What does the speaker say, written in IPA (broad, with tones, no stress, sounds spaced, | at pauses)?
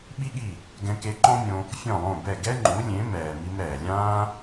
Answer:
ɓ i˥ ɠ i˥˩ | ɡ ɛ̃˧ k e˧ ǃ ɔ̃˥ mʲ õ˧ | fʲ ɔ̃˥˩ lˠ õ˥˩ b ɛ˥˩ ɡ ɛ˥ ŋ͡ǃ u˩˥ lʲ ẽ˩˥ m ɛː˩ m i˧ m ɾ ɛː˩ lʲ ãː˥